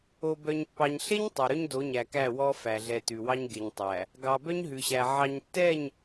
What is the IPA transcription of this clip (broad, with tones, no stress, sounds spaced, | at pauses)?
o˨ b œ˨ ɲ pː ɑ˨ ɲ ɬ e˦ ɲ tˤ ɛ˨ ɾ ɵ˦ ɲ d o˨˦ ɲ æ˨ k æ˦˨ w ɔ˦ f æ˨ ɮ ɛ˨ t ʉ˨ w ɑ˦ ɲ ɡ e˨ ɲ tˤ æ˨ | ɡ ɑ˨ b œ˦ ɲ ɦ ʉ˨ ɕ æ˨ ʕ ɑ˨ ɲ tː ɛ˦˨ ɲ